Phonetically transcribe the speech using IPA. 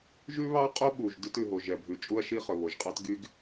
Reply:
ʒʉ˥βɑ˥qʼo˥ɓu˩ʒ dʉ˥tʉ˩ ɦo˩ʒɛ˩bʱʉ˩ t͡ʃʼu˥ɐ̯ʃi˥χɵ˩βo˩ʒ qʼɑ˥tɡy˥ɡ

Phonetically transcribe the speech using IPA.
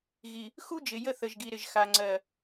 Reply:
ɣi˨ | xu˦d͡ʒɪ˨ jə˦θə˨ʒɡi˨ ɾɪ˨ʒxa˨ ŋ͡ǀɜ˨

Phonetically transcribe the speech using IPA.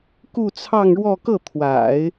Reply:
ku˥˧t͡sʰɑ˥˧ŋɻwɔ˥˧ kɤ˥˩t̪ʰwa̰˨˩˦ɪ̯

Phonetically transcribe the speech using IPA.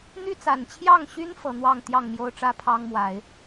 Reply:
n̪y˦t͡sa˨˩nt͡ɕʰjɑ˥˨ŋɕy˦n fɤ˨˦n̪wɑ˥˨ŋ t̪jɑ˥˨ŋmjo˦ʊ̯ʈ͡ʂä˦ pʰɑ˦ŋmwa˨˦ɪ̯

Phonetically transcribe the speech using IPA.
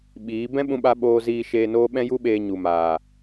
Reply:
ɓiː˨˦ bɛ̃˦ɓũ˧ɓa˧ ɓoː˧ziː˧ ʃeː˧noː˦ ɓɛ̃˦ju˦ɓeː˧ ɲu˨maː˨

